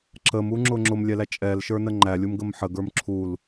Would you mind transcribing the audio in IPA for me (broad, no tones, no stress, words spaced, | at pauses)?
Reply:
ǁəmuŋ͡ǁʊ ŋ͡ǁʊmlʲɛlæ t͡ʃʼɛlʃə˞nə ŋ͡ǃælʲumɡəm ħəɡə˞m ǁʰul